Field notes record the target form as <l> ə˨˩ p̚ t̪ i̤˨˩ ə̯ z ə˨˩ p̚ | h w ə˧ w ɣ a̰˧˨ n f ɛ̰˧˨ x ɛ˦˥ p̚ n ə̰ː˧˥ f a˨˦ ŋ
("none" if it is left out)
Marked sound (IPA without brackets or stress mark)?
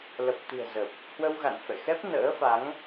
l